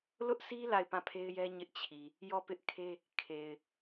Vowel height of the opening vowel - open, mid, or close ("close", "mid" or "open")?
close